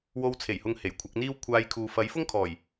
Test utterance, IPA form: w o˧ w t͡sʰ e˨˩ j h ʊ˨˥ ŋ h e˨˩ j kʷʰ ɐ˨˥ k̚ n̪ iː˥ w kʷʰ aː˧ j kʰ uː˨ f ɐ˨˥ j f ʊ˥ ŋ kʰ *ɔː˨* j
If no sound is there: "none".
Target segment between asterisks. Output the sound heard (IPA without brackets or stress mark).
ɔː˨˩